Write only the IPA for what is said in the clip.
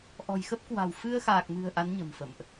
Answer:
ʔ ɔ̤˨˩ j x ə˦˥ p̚ k w a̤˨˩ w f ɨ˧ ə̯ x aː˨˩ k̚ m ɨ̤˨˩ ə̯ ʔ a˨˦ n ɲ ə̤˨˩ m f ə̰˧˨ m ʔ

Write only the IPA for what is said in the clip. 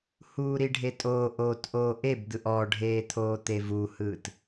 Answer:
h uː ɾ i ɖʱ e tʼ oː ʔ oː t ʔ oː ʔ e b d̪ ɯ ʔ ɔ ɖʱ eː t̪ʰ oː t̪ e v u h ɯː t

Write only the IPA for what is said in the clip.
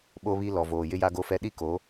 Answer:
ɓ o˦ β i˦ l ɔ˨ v oː˨ j ɪ˦ j a˦ ɡ o˦ f ɛ˦ ɗ i˦ k o˨˦

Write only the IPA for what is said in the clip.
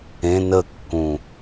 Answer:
ẽ n ə kː ũ

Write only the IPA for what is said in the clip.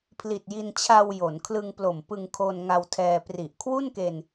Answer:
pʰ l i˨˩ t̚ j i˧ n t͡ɕʰ a˧ w j o˩˦ n kʰ l ɯ˧ ŋ p l o˨˩ m p ɯ˧ ŋ kʰ o˧ n ŋ a˧ w tʰ ɛː˧ p r i˨˩ ʔ kʰ w u˥˩ n k e˧ n

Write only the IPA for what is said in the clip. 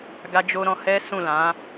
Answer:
ɡ a˦ d͡ʒ o˦ ɾ ɔ̃˧ h ɛ˦ s ũ˦˨ l ã˨˦

